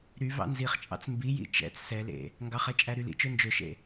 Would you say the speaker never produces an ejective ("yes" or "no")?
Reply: no